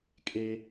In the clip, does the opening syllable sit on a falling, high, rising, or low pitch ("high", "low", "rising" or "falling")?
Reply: high